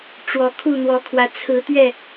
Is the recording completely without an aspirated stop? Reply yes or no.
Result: no